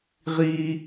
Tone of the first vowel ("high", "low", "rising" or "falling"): high